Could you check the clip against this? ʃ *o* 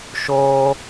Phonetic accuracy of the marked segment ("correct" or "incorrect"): incorrect